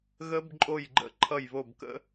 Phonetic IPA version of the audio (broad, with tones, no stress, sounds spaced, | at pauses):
ɣ ə˦˥ b ǃʼ o˦˨ j ɡ͡ǃ ə̰˦˨ ǃʰ ʌ˦˨ j β o˦˨ b k ə̰˦˥